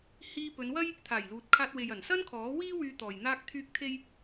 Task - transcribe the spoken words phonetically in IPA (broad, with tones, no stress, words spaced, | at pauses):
hiː˧pɵ˨˧nwɐ˥j | t̪ʰaː˨˩jluː˨t̚kʰaː˧t̚we˨j ɐ˨˩nsɐ˥nkʰɔː˨˥wiː˥ wyː˧t̪ɔː˨j n̪aː˥k̚t̪ʰyː˥k̚ t̪ʰe˥j